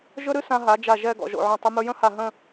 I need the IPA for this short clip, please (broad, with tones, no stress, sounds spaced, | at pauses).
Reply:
ʒ ɵ˥ ɾ ɨ˥ s ã˧ ɦ a˩˧ d͡ʒ a˧˩ ʒ ɛ˥˧ ɡ ɔ̰˧˩ ʒ o̰˧˩ ʕ ɔ̃˧˩ tˤ ə˧ m ɵ˧ j ə̃˥ h a˧˩ ɦ ə̃˥˧